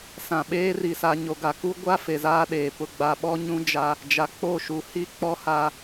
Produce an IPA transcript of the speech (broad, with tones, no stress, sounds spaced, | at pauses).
s ã˨ ɓ eː˦ r i˨ s a˨ ɲ o˨ ɡ a˨ k u˦ ɡʷ a˦ f e˨ z aː˦ ɗ eː˨ p ʊ˨ ɡ͡b a˨ ɓ ɔ˦ ɲ ũ˦ d͡ʒ a˦ | d͡ʒ a˨ k͡p o˦˨ ʃ u˨ h i˦ k͡p ɔ˦ h a˦